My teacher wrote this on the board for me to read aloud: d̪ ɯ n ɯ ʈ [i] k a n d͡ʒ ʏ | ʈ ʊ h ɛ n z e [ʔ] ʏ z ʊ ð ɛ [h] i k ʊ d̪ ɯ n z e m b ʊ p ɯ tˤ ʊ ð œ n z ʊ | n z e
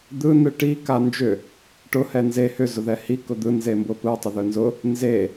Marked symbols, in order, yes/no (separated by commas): yes, no, yes